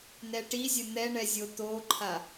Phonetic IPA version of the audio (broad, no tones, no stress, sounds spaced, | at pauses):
n ɛ ʈ i zʲ ə n̪ ɛ ɳ ɛ zʲ o t̪ o ǃʰ a